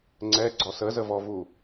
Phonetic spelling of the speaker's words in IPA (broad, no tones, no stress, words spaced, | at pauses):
ŋ͡ǀɛɡ͡ǀɔ səzəvɔvu